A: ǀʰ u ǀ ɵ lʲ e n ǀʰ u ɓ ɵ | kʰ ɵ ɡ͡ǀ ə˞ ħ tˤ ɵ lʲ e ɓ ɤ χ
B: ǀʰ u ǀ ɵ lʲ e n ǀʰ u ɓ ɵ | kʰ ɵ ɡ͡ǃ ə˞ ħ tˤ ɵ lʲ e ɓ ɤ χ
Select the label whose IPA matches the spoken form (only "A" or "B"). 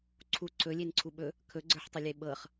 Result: A